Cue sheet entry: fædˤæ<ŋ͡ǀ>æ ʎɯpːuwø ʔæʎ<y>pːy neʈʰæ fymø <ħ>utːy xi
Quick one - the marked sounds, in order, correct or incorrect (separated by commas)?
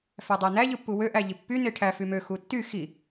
incorrect, incorrect, incorrect